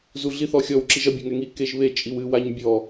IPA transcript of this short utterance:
zuɮiθɔxʲɔw ǁiʒɐbʲɐŋɛ ŋi keʒβe t͡ʃʼiwɨ waɲbʲɔ

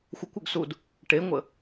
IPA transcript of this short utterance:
xʷəkʷʏɡsud | ʈeŋʷə

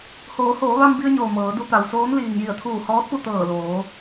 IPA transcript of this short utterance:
hoː˩˧hoː˩˧ ʋa˧mbi˧ə̯ɲoː˩ mɤː˩˧du˧t̪a˩wsoː˧˥n liː˩ŋji˧˩ə̯t̪ʰuː˧˩ hɔː˧˥t̚pu˥˨ t̪ɤː˧˩loː˩˧

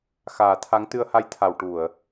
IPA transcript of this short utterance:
xaː˨˩˦t̪ʰa˧˥ŋ t̪ɨ˧ə̯ha˧jt̪ʰa˨˩˨w ʈu˨˩˨ə̯

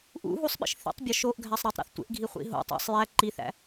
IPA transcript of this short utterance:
ʔṵ ɦusˤɓḭʃ θḭtˤbʲɒ ʃoʔɡʱæsˤ ɾetˤɾṵθtʷḛʔɡʱi χʷḭɦo̰tˤæ̰sˤ jæ ǃiθæ̰

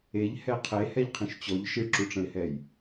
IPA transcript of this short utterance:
eʎhɛ qʰehɛʎqʰĩʃ t͡ɕɔʎ ʃiɭǁuʈ͡ʂə̃ɪ̯hɛj

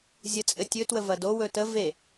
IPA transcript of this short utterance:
zʲət͡sʼɘtʲɵ twəvɐdo wɵtə ve

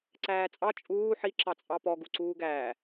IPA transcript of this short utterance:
ǀæːt͡sʼɑ t͡ʃʼuː ħi ǁɑt͡sʼɑpɔ ɡuǀuːɡæː

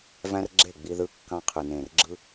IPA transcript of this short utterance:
væ̃˦rɡ͡ǁe˦˨ ɡ͡bi˧ðɯ˧ kːɑ̃˧ qʰɯ˨nẽ˨r ɡ͡ǁɯ˧

